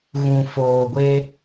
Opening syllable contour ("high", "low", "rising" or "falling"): low